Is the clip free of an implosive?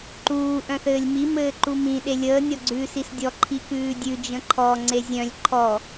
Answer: no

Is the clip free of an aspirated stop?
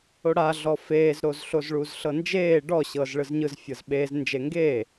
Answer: yes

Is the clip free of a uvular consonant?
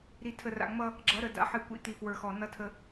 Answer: yes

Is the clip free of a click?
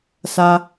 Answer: yes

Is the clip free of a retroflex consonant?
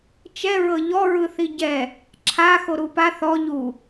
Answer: yes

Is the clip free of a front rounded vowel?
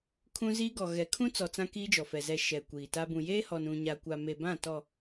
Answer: yes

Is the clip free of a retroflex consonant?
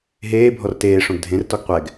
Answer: no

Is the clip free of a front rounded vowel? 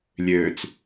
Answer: no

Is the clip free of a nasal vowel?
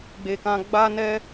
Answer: no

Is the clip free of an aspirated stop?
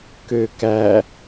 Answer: yes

